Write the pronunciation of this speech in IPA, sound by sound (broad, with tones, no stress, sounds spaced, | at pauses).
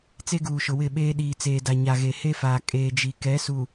t͡s e˦ ɡ uː˨ ʃ ʊ˨ w ɪ˦˨ ɓ eː˦ ɗ iː˨ t͡s eː˨ d a˨ ɲ a˨ ɣ e˨ h e˦ f aː˨ kʼ eː˨ d͡ʒ i˨ k ɛ˨˦ s u˨